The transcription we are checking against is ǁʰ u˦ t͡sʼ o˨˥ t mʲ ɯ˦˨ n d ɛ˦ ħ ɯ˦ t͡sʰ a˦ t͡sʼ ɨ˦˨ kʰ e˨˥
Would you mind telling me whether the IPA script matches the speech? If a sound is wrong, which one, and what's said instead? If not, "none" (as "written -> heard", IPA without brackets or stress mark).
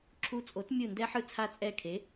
ɨ˦˨ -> ɛ˦˨